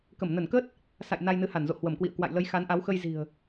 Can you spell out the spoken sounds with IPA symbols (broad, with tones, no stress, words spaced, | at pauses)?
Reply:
kə˧˩mnə˧˩nkəː˦˥t̚ | sa̰˧˨j na˧jnɨ˨˦ha˧˩nzo̰˧˨ hwə˧˩mkwḭ˧˨ə̯kwa̰˧˨jlə˨˦j xa˨˦nʔa˨˦wxə˧j zi̤˨˩ə̯